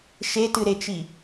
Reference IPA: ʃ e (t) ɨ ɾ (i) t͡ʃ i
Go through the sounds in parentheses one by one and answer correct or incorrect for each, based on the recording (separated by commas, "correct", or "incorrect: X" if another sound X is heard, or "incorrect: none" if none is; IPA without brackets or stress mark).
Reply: correct, incorrect: e